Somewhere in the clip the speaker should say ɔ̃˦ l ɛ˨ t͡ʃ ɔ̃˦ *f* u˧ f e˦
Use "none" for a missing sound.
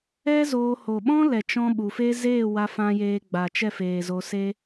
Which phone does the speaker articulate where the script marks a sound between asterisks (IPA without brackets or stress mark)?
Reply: ɓ